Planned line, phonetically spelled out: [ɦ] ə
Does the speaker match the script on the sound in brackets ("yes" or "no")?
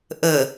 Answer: no